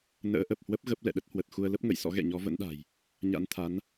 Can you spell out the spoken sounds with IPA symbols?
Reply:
n ə̰ː˧˥ ʔ ə˨˩ p̚ h w ə˦˥ p̚ ɣ ə˦˥ p̚ l ɛ̰˧˨ ɗ ə˦˥ t̚ h w ə˨˩ t̚ x u˧ ə̯ l ə˦˥ p̚ ŋ ə̰˧˨ j s ɔ̰˧˥ ɣ ɛ̰˧˨ ɲ ɔ˨˦ v ə̰˧˥ n ɗ a̤˨˩ j | ɲ a̰˧˥ n t̪ʰ a˨˦ n

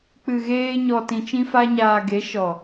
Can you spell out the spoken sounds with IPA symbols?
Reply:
k͡p ɨ˨ ɣ eː˧ ɲ ɔ˨ t ĩ˨ t͡ʃ ĩ˧ f a˧ ɲ aː˨ ɡ e˨˦ ʃ ɔ˨

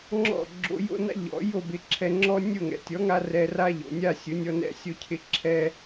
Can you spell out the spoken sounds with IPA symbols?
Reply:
ŋ͡ǁ ɔ̰˥˩ ɡ͡ǁ o̰˧ j o̰˥ n a̰˥ ʎ ɔ̰˩˥ j o˥˩ b ɪ˧ ǁʰ ɛ˧ ŋ͡ǁ ɔ˥ nʲ ʊ˥˩ ŋ ɛ̰˩ tʲ ɔ˩˥ ŋ a˧ r ɛ˧ r a˥ ʎ o̰˩ nʲ a˥˩ sʲ ʊ˩˥ nʲ ɔ˧ n ɛ̰˧ sʲ o˧ cʰ ɪ˩˥ ǁʰ ɛ˧

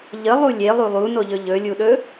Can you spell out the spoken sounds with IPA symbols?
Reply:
ʎ ə lˠ u lʲ e lˠ u lˠ u n o ʎ ɵ ʎ ɵ lʲ u ɗ ɵ

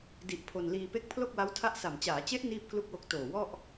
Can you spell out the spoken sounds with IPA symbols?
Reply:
d i˨˩ ʔ pʰ o˧ n l iː˧ p e˦˥ k̚ pʰ l o˥˩ k̚ w a˦˥ w tʰ a˦˥ ʔ s a˨˩ m t͡ɕ aː˩˦ t͡ɕ e˦˥ ʔ n iː˥˩ p̚ k l u˥˩ k̚ w o˦˥ k̚ t oː˨˩ w ɔ˥˩ ʔ

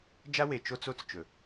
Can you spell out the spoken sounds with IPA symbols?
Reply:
d͡ʒ a˦ w e˨ t͡ʃ o˦ t͡s o˦ t͡s t͡ʃ ɵ˨

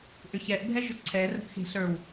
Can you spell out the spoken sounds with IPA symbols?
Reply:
ʔ ʏ ç ɛ ʔ bʱ ɛ ʒ ʏ ǀʰ ɛ r ə̤ ʔ x e̤ ɬ ə˞ w

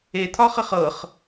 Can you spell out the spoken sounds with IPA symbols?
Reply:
e t̪ʰ ɒ χ ə χ ɤ χ

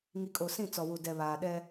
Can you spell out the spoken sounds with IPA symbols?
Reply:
ŋ i˨ kʼ o˨ s ĩ˦˨ t͡s ɔ˨ w u˨ d ɛ˨ β aː˨ ɗ ɛ˦

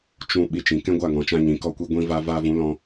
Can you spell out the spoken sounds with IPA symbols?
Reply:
t͡ʃ ũ˧ ɓ i˧ t͡ʃ ĩ˨ k ɛ̃˦ ɡʷ a˦˨ ŋ ɔ̃˨ t͡ʃ ã˧ ɲ ĩ˨ k ɔ˧ kʷ i˧ ɡʷ ĩ˧ v a˧ v a˧ v ũ˨˦ l ɔ̃˧

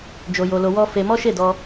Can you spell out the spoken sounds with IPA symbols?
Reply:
d͡ʒ o˧ j o˧ l o˧ w ɔ˦ f e˧ m ɔ˦ ʃ e˦˨ d ɔ˧

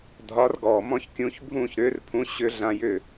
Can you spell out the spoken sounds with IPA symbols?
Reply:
dʱ ɒ˨˥ r ɡ ɔː˩ m ɔ̃˦ ç kʲ ũ˨˥ ç bʱ ũː˥˨ ç ɾ ʏː˨˥ r pʰ ũ˨˥ ɕ ʏ˦ ɮ ã˦ j ʏː˥˨

